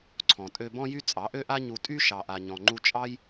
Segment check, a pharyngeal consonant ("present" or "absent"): absent